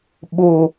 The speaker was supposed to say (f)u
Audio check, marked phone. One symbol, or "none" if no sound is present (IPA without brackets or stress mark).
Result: ɓ